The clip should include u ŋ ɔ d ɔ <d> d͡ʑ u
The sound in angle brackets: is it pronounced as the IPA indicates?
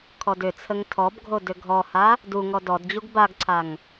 yes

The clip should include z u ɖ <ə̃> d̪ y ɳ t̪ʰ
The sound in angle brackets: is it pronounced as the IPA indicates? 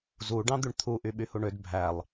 no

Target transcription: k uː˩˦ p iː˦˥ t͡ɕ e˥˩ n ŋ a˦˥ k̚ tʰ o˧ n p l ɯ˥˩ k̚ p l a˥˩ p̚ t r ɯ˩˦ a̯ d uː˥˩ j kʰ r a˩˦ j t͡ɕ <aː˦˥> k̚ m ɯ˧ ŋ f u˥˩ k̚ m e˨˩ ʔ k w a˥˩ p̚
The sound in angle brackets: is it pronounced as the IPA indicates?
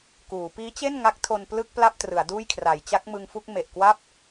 no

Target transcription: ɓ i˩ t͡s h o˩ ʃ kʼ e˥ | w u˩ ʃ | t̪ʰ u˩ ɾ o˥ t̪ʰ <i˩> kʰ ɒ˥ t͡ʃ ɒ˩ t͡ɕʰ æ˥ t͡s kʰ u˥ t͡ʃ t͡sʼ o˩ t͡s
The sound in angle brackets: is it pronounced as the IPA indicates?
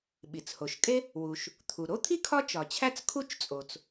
no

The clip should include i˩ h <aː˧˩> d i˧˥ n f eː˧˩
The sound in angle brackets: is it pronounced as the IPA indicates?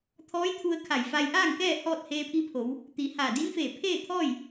yes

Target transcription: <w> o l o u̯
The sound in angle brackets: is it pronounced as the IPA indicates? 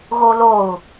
no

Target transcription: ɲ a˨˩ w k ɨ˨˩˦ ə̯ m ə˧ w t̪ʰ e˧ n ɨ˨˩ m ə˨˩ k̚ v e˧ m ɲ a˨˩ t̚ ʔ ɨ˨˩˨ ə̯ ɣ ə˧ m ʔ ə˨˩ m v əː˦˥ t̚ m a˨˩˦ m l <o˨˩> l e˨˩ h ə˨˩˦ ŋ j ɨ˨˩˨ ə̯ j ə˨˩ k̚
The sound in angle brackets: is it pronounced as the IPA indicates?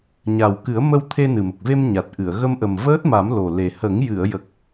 yes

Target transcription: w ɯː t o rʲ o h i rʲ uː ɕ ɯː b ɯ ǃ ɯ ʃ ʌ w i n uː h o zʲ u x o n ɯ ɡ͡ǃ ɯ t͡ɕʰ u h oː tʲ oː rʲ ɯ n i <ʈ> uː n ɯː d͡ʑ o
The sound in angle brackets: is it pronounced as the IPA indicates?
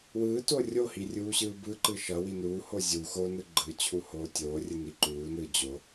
no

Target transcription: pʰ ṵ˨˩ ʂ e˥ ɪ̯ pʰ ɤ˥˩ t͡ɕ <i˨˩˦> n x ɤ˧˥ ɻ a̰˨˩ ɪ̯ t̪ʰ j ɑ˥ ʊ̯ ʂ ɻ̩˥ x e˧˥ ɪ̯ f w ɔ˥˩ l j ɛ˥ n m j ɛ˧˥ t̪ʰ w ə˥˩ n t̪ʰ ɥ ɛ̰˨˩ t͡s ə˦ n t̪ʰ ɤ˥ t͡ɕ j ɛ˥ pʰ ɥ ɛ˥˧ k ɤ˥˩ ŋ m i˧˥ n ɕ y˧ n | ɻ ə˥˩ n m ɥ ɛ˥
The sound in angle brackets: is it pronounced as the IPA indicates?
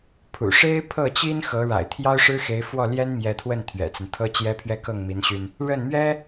no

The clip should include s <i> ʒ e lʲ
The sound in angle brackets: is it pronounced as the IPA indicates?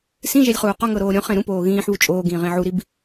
no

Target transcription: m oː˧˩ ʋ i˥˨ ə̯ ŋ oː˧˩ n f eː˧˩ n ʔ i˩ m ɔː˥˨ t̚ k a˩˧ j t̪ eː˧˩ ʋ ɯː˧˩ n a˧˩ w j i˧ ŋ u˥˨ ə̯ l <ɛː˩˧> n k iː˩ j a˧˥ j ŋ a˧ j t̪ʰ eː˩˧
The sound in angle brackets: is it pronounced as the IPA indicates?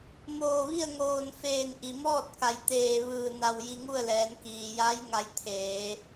yes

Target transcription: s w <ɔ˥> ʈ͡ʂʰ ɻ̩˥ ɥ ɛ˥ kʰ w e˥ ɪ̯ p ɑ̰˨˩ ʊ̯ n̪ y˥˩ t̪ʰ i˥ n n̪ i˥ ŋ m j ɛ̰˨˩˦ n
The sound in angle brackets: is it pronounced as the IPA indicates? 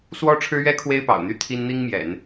yes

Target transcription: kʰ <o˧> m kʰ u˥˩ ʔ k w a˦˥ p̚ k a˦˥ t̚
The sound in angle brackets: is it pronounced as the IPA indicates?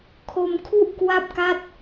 yes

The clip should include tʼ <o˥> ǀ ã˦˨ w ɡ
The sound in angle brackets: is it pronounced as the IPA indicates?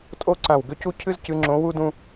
yes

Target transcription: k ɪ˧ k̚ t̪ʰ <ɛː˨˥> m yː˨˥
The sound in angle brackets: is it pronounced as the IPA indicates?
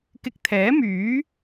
yes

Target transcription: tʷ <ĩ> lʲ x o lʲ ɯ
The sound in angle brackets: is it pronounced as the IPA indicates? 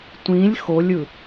yes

